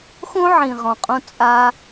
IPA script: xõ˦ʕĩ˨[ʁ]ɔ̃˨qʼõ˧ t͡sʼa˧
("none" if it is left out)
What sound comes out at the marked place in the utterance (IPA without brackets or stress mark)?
ʁ